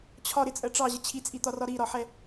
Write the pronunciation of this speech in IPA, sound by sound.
t͡ɕʰ ɒ ɾ ɪ t͡sʼ ɜ ʈ͡ʂ ɑ ʑ ə t͡ɕʰ i t͡sʼ i t̪ ɒ r ɒ ɾ i ɾ ɒ ħ ɛ

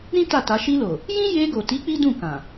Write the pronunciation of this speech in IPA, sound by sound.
ɾ ĩ˦ t a˦˨ t a˨˦ ʃ i˧ l o˨ | j ĩ˦ j e˧ ɡ o˨ t i˨˦ k͡p i˦ d ũ˦˨ k ã˨

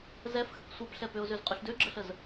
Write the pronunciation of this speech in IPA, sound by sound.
z ɛ f x ə k sʷ ɛ p ɬ ɛ p ø ʊ̯ z ø z qʼ y ɬ d ø ɡ͡ǁ ə ɬ ə z

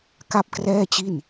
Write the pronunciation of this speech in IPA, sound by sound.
k a˥˩ p̚ k r ɛː˥˩ t͡ɕ i˥˩ n

